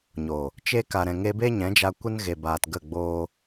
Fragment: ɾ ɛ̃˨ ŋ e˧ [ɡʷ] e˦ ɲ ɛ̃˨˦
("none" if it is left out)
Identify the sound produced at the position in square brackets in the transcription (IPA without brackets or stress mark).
b